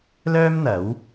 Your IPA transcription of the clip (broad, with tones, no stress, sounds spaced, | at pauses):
l œː˥ m n̪ ɐ˨˥ w